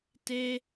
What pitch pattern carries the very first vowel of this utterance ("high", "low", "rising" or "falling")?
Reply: high